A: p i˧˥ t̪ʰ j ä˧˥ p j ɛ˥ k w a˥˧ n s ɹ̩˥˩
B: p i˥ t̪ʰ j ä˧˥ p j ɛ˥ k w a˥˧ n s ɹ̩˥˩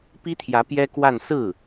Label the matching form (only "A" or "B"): B